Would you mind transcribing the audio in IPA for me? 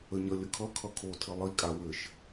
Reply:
ə ɲ ʌ lʲ ə kʰ ʌ kʰ ʌ kʰ o tʰ ɘ lˠ i kʼ a w ɘ ʃ

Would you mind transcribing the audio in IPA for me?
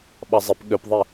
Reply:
ɓ ɑ zˤ e p ɠ ø p ðˤ i

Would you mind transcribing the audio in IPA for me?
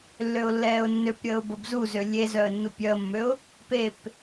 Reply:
lː ø ʊ̯ lː ɛː ʊ̯ nː ø p ɾʲ əː ʊ̯ b ə b z u z ø lʲ e z œ ə̯ nː u pʲ œ ə̯ mː ø ʊ̯ | p e p

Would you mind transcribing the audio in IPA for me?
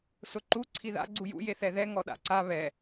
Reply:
s ʊ ǃ u ǀʰ i ð a̰ ɡ͡ǀ u j ṵ j e θ ɛ ð ɛ ŋ ɔ ɗ a̰ ǀ a β ɛ

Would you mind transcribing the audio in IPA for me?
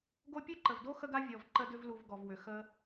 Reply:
ɡ o˦ pʲ ɯ˥ ǃ ə˩ v d o˥ x ə˦ ɡ a˦ vʲ ɔ˩ v ǃ ə˦ d ʏ˦ v l u˨ v ɡ ɔ˩ v w ʏ˩ x ə˨

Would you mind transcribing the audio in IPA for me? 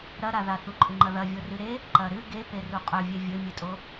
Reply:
ɾ ɐ ɾ a ð a θ u ǃʼ ɨ ŋ͡ǃ ɐ ð ɐ vʲ o r ɨ ɾ e | ǃ ɐ ɾ ɨ ɡ e p e r u qʼ ɵ vʲ e vʲ ɵ mʲ ɨ tʼ o

